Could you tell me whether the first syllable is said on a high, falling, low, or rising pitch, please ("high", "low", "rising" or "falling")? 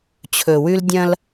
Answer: low